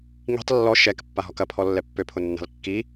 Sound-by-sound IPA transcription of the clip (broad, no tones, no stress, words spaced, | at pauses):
ŋi̤tˤ lːɔ ʃɛk pːaɦɔkɐ pʰɔlːɛpːøpʰʊ nːa̤lkːi